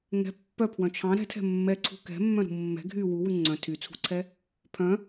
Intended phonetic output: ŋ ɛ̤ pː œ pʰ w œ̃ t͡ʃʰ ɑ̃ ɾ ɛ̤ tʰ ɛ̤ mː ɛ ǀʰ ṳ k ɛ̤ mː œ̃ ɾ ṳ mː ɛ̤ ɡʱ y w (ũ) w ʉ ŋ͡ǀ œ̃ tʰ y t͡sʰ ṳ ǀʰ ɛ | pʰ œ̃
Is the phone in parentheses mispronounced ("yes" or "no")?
yes